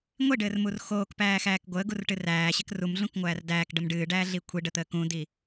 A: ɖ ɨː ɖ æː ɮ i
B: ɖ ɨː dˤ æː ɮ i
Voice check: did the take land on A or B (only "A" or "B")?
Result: A